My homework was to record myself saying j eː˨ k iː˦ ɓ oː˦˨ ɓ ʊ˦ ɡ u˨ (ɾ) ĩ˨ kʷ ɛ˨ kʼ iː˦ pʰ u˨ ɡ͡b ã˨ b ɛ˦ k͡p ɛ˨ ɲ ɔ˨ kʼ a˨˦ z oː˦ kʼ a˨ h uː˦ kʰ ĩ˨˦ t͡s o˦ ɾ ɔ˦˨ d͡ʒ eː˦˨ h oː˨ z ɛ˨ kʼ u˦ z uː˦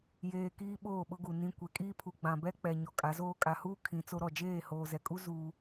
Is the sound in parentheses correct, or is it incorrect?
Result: incorrect